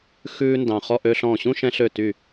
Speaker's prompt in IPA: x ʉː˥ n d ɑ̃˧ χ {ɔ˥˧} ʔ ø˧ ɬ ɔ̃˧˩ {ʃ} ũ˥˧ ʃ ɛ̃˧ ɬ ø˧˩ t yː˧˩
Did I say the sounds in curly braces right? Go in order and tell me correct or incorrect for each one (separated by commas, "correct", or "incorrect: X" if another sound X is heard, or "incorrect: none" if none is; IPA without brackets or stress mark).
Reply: correct, incorrect: ɕ